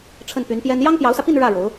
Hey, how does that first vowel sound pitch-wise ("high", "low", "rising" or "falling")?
falling